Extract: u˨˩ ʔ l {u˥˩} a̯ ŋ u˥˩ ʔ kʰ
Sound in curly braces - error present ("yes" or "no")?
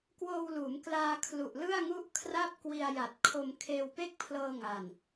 yes